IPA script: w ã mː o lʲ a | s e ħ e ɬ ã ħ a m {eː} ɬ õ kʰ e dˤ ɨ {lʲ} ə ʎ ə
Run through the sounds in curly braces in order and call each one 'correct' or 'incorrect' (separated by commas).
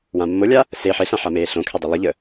correct, incorrect